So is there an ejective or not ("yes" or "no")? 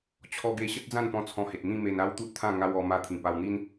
no